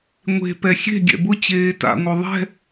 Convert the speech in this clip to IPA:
ŋʷ e̤ p ɛ xʲ e̤ ɡʲ ɛ̰ b ʊ t͡ɕ eː t a̰ ŋʷ œ ðˤ ɛ̤

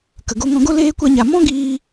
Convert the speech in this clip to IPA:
k ə˨ ɡ o˧ ŋ ɔ̃˧ ɡ o˦ l eː˦ kʷ a˦ ɲ a˧ m ɔ̃˦ ɡ iː˧

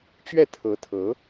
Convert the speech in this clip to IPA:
t͡ɕ ɥ ɛ˥˩ t̪ʰ ɤ˧˥ t̪ʰ ɤ˧˥

